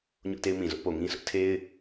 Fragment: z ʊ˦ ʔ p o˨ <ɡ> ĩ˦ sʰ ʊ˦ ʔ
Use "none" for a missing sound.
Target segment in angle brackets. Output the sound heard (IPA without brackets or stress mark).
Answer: ŋ